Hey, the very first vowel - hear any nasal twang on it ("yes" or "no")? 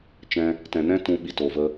yes